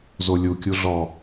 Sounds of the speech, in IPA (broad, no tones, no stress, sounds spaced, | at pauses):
z o lʲ u kʲ u ɮ ɔ